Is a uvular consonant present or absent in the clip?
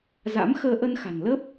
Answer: absent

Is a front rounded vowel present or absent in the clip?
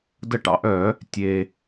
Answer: present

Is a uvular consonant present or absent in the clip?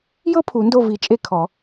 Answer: absent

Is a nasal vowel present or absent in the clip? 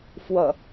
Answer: absent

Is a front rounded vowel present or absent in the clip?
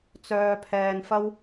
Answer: present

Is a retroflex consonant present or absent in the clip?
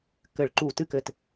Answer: present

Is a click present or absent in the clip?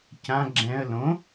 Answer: present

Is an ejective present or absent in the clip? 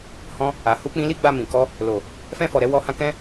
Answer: absent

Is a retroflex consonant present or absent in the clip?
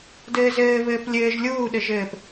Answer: absent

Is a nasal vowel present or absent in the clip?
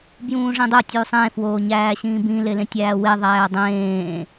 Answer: present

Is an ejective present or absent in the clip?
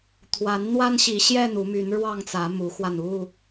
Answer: absent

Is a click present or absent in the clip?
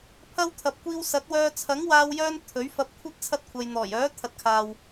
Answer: absent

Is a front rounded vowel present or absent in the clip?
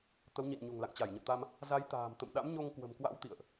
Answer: absent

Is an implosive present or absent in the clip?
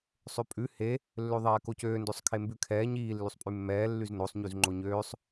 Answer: absent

